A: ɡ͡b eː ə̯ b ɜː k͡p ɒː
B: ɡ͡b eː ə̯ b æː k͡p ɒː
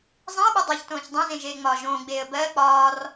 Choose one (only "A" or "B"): A